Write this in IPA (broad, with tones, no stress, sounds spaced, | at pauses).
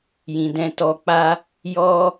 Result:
j ĩ˨ d ɛ̃˧ t ɔ˧ k͡p a˦ | j ɔ˦